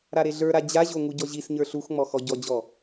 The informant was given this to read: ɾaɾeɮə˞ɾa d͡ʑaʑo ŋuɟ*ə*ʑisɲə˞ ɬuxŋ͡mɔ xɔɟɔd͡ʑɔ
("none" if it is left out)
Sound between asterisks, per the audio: ɔ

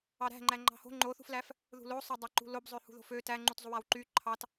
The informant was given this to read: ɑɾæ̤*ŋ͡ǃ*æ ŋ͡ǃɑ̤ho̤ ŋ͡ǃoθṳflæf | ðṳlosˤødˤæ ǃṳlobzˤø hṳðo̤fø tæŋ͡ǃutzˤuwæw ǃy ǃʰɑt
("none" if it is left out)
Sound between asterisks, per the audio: ŋ͡ǃ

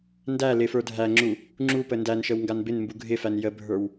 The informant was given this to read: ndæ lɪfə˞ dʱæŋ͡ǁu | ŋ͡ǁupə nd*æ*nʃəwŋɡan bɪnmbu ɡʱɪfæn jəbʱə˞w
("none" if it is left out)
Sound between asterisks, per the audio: æ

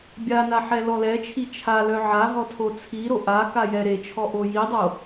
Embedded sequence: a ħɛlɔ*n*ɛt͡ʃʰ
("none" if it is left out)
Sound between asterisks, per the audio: l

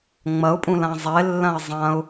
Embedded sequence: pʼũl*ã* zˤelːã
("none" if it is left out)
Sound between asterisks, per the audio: ã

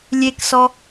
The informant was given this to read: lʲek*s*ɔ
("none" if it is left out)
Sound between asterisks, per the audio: s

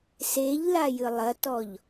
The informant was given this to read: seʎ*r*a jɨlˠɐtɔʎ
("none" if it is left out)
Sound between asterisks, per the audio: l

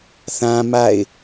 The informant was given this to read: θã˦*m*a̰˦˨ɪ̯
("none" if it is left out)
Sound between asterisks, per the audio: m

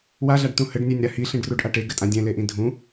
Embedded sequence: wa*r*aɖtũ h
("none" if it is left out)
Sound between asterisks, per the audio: ɮ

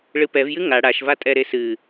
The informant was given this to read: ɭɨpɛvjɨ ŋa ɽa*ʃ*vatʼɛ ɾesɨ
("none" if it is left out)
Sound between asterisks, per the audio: ʃ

